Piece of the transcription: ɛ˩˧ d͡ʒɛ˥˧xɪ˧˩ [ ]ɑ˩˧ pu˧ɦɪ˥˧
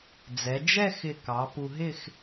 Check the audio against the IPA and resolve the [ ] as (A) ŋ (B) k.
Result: B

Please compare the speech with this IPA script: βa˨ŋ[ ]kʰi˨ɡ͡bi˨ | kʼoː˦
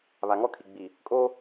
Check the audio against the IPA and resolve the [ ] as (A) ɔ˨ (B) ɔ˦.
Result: B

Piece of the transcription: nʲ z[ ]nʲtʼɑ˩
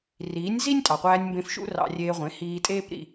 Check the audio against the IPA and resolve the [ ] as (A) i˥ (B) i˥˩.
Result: A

